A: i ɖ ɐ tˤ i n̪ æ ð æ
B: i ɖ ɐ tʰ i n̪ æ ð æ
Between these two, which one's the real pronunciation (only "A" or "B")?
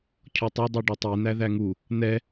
A